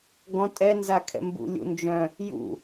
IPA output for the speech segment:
ɡ ɔ̃ tʼ ɛ n z a kʰ ɛ̰ m b ṵ lʲ ṵ n d͡ʒ œ̃ | j ṵ

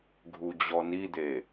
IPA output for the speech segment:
ɡʱ u d͡ʑ ɔ n i d̪ e

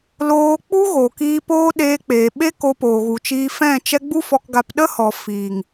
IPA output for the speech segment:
l oː˧ k͡p u˦ ɣ o˨ k iː˧ p oː˦ ɗ eː˧ k͡p eː˨ ɓ e˦ k o˧ p oː˨ ɣ u˨ t͡ʃ iː˧ f ɛ̃˦˨ t͡ʃ ɛ˦ ɡ͡b u˦ f ɔ˧ k ɡ a˧ p ɗ ə˦ h ɔ˨ f iː˨ ŋ

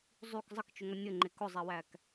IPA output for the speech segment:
zˤ y k zˤ ə k t͡ʃ ʊ ŋ ʌ nʲ ə ŋ͡ǃ e k ʊ zˤ e w æ k

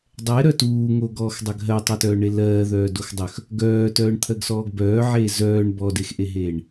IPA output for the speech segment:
dˤ ɛ ɾ œ t uː ŋ o ɡ ɔː x dˤ œ ɡ ɦ ɜ tˤ œ t œː ɳ e l ɜː ð œː d o x dˤ œ x | ɡ œː t œː ɳ t̪ʰ ɜ ɡ s ɔː ɡ b œː ʕ eː z œː ɳ b ɔ d e x ʔ e ɦ eː ɳ

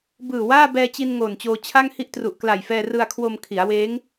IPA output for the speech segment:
b ɯː˨˩ w aː˥˩ b ɛː˧ t͡ɕ i˧ n ŋ oː˨˩ n t͡ɕ oː˧ t͡ɕʰ a˥˩ ŋ h i˥˩ ʔ t r u˨˩ ʔ k l a˨˩ j f ɛː˧ r ɯ˧ a̯ kʰ w o˧ m kʰ i˩˦ a̯ w eː˦˥ ŋ

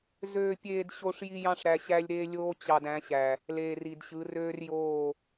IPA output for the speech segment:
z øː˨ pʲ eː˨ d ɕ o˨ ʂ j i˦ j ɑ̃˦ ʂ ɾ æ˨ ɕ æ˦ lʲ ɾ eː˦ lʲ oː˦ t͡ɕ ɑ˨ d æ̃˨˦ ɕ æ˨ | l eː˨ r i˨ d ɕ ɯ˨˦ r øː˦ r j oː˦˨

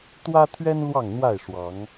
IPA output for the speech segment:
t̪ w ä˦ t̪ʰ ɥ ɛ˦ n l w ɑ˥˨ ŋ n̪ w a˥˨ ɪ̯ ʂ w ɑ˨˦ ŋ

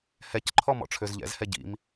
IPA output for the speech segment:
h ɛ c ǃʰ ɔ m ɔ̰ ʈ͡ʂʰ ø z ʎ ɛ̰ z h ɛ ɟ ḭ m

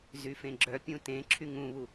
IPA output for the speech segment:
z y f ẽ ɡ͡ǁ œ pʲ ũ t ẽ ǁʰ y ŋ ũ β u

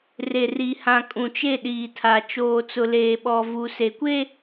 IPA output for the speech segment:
r e˨ r i˨ h ã˨ kʼ ũ˨ t͡ʃ e˦˨ ɗ iː˨ tʰ a˨ t͡ʃ oː˨ t͡s ʊ˨ l eː˨ ɓ ɔ˨ v u˨ s e˨ kʷ e˦

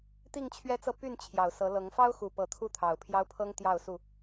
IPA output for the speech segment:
t̪ i˥˨ ŋ t͡ɕʰ ɥ ɛ˦ t͡s ɤ˥˨ p y˥˨ n t͡ɕʰ j ɑ˨˩ ʊ̯ s ɤ˨˦ l ɤ˨˦ ŋ f ɑ˦ ʊ̯ x u˨˩ p ɤ˨˦ t̪ʰ u˦ t̪ʰ ɑ˨˩ ʊ̯ pʰ j ɑ˦ ʊ̯ pʰ ɤ˦ ŋ t̪ j ɑ˥˨ ʊ̯ s u˥˨

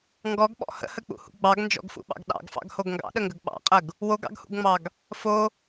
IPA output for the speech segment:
ŋ ɡ ɔ ɡ ɓ ɔ̰ h ə̰ h ə k͡p ṵ h ṵ ɡ͡b ɑ ɡ n d͡ʒ ɔ̰ ɡ f ṵ ɓ ɑ̰ ɡ ɗ ɑ̰ ɡ f ɑ̰ ɡ h o ɡ ŋ ɡ ɑ̰ ɗ ə ŋ ɡ ə ɡ ɓ ɑ̰ qʼ ə ɡ | w o ɡ ɑ̰ ɡ h ṵ ɡ ŋ͡m ɑ ɡ | f o

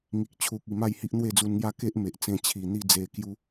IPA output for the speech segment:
ŋ i˨ k̚ t͡ɕʰ u˨ k̚ i˨˩ m a˥˧ j h i˦ ʔ n̪ w e˥˧ d͡z u˧ n ŋ j a˦ k e˦ ʔ m e˨ ʔ t͡s ẽ˧ t͡ɕʰ i˨˩ n̪ i˥˧ d͡z e˧ k j u˦

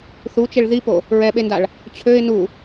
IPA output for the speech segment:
θ u t͡ʃ e ɭ ð i p o | ɹ ɛ ɓ e n d a ɭ | t͡ɕʰ ø ɪ̯ n u

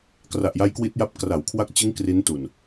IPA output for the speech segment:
k r a˨˩ ʔ j a˦˥ j k w i˦˥ t̚ j a˦˥ p̚ k r a˩˦ w kʰ w a˦˥ k̚ t͡ɕ ɯ˦˥ ŋ k r i˦˥ n t u˨˩ n

